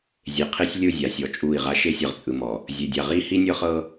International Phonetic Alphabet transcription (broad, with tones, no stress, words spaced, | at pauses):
zʲe˨qʰe˦sʲ lʲɯ˦˨zʲa˨sʲɔ˨ t͡ʃʼuː˦˨i̯ʁa˦ ʃe˦sʲɤ˨ʁt͡sʼɯ˨mɔ˨ | zʲe˨dʲa˨ʁiː˦ hi˦nʲɤ˦χɤ˦